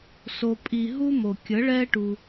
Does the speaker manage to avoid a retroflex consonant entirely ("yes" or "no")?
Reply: no